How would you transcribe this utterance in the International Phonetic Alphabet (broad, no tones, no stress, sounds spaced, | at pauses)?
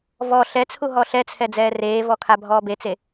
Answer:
v ɔ ɬ ɛ t͡sʰ u ɦ ɔ ɬ ɛ t͡sʰ ɛ d͡z ɛː r eː v ɔ kʰ a bʱ ɔː b e t͡s e